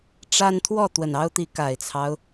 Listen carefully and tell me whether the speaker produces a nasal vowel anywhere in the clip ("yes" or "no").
no